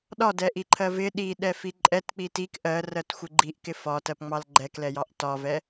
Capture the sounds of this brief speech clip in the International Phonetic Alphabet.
ɗ ɒ d ɛ ʔ i ǃʰ ɜ v ɪ ɗ i ɗ ɛ f i ǃʼ ɛ t k͡p i t i k ʔ ɜ r ɜ t xʷ ɪ ɡ͡ǃ i ʔ k ɪ f ɒ t ɜ p ŋ͡m ɑ l ɡ͡ǃ ɛ k l ɛ j ɑ ʔ t ɒ v ɛ

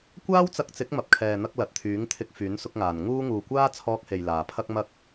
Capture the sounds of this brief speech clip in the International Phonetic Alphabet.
kʷ aː˥ w t͡s ɐ˧ k̚ t͡s ɪ˨˥ k̚ m ɐ˨ p̚ kʰ ɛː˨ n̪ ɐ˧ k̚ l ɐ˨ t̚ t̪ʰ yː˨˥ ŋ t̪ʰ ɪ˧ k̚ f yː˨˥ n s ʊ˧ k̚ ŋ aː˨ n ŋ uː˥ ŋ uː˨ kʷ aː˥ t͡sʰ ɔː˧ k̚ h e˨ j l aː˨ pʰ ɐ˥ k̚ m ɐ˥ k̚

